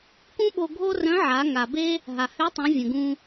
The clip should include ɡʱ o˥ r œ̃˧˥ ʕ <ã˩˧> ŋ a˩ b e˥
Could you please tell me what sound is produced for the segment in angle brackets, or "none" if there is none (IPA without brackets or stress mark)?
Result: a˩˧